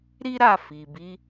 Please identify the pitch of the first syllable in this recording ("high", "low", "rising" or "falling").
high